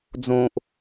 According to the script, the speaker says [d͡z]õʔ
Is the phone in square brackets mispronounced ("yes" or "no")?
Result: no